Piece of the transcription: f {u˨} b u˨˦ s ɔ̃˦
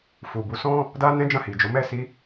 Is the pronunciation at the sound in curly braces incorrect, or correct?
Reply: correct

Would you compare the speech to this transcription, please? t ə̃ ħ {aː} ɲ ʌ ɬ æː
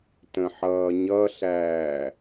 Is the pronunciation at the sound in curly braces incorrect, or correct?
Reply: incorrect: ʌː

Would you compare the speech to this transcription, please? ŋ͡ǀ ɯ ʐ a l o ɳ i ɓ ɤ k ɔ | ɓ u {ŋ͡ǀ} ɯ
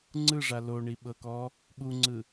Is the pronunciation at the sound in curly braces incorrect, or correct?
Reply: correct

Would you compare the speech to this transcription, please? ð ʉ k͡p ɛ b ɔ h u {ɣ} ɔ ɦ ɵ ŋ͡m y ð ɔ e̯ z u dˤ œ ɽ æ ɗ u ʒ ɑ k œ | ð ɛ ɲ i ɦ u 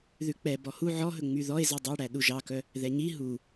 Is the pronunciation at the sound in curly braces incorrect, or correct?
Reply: incorrect: ʕ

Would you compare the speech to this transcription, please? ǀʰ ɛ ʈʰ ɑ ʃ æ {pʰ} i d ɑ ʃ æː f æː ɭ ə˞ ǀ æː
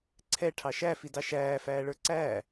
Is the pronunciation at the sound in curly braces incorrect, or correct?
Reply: incorrect: f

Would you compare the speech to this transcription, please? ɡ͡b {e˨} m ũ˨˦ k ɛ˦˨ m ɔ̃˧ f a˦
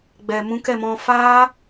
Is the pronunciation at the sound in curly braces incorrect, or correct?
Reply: incorrect: ɛ˨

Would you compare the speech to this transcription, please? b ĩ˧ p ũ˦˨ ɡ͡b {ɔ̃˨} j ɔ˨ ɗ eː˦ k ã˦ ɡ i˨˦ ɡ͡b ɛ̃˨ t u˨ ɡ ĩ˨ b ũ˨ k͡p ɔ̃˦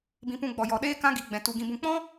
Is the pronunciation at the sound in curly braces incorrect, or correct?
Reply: incorrect: ɔ˨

